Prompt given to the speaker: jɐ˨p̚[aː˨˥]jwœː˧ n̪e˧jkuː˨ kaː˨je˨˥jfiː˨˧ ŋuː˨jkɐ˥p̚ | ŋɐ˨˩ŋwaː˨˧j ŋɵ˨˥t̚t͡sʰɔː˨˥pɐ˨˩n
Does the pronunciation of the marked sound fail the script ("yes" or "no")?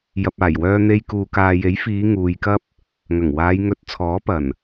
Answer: yes